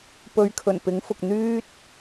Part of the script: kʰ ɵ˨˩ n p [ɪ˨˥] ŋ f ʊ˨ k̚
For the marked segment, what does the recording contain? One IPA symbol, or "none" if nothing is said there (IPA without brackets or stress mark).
ɪ˨˥